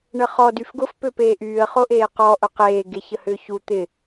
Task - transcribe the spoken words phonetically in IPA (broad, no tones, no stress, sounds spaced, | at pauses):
ɳ ə χ ɔ d y f ɡ ʊ f p ø p eː ʔ yː ə̯ χ o ʔ eː q ɔ ʔ ʊ q eː ɡ e ç ə h ʏː ç u t̪ ɪ